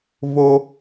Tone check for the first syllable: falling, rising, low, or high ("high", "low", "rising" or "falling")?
high